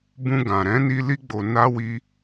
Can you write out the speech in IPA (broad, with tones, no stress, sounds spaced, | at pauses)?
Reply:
b ũ˧ ɡ ã˨ ɾ ɛ̃˨˦ n i˧ l i˧ ɡ͡b o˨ n a˧ w i˧